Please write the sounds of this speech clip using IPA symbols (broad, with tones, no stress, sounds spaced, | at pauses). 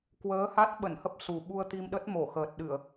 k w əː˨˦ h a˦˥ t̚ ɓ ə˧˩ n h ə˦˥ p̚ s u˨˩ ɓ u˧ ə̯ t̪ i˧ m ɗ ə˦˥ t̚ m o˧˩ x əː˨˩ t̚ ɗ ɨ˧˩˨ ə̯